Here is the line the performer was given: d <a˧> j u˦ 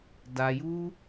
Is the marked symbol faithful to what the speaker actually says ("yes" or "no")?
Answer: yes